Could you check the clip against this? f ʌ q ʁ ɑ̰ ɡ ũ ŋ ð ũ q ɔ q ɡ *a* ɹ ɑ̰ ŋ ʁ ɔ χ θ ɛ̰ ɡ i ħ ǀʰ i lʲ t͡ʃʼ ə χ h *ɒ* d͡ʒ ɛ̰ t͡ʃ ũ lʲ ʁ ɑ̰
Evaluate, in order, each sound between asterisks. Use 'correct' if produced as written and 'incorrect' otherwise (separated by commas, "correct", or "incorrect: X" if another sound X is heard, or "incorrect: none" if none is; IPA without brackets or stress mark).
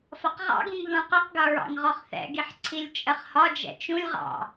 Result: incorrect: ʌ, correct